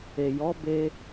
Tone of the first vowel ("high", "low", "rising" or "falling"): low